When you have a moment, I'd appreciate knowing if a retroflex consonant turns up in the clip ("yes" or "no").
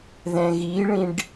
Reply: yes